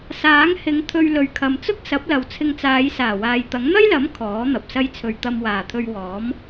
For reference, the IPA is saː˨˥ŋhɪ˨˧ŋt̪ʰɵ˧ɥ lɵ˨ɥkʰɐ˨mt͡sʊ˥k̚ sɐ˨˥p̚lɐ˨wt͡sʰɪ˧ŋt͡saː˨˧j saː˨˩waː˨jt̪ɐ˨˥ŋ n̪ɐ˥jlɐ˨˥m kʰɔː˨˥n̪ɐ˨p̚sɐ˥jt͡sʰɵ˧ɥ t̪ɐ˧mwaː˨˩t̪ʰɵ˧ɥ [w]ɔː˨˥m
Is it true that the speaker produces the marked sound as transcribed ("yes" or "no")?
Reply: yes